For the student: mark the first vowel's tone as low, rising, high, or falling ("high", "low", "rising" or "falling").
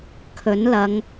rising